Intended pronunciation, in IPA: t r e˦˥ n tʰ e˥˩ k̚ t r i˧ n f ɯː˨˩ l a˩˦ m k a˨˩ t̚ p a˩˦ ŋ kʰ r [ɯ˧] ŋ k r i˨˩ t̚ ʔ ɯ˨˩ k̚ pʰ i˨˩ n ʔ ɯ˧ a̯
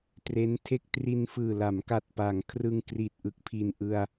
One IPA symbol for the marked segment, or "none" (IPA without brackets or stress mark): ɯ˧